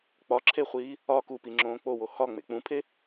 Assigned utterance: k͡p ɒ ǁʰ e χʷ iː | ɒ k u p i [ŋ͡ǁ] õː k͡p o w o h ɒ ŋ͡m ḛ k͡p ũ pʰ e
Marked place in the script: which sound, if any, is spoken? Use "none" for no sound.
ŋ͡ǁ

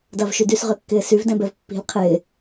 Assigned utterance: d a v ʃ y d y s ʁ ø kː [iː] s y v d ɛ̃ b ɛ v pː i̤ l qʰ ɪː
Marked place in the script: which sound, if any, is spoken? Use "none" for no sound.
ɪː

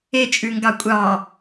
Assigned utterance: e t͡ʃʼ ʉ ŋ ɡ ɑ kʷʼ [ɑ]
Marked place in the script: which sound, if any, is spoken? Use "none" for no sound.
ɑ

